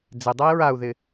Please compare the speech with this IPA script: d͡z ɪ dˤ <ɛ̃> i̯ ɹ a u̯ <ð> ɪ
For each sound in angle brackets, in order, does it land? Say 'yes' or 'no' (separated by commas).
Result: no, yes